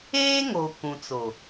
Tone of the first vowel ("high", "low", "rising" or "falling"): high